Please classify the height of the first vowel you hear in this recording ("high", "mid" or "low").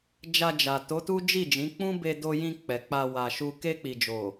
low